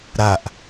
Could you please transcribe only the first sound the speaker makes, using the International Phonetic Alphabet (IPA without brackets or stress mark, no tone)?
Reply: ɾ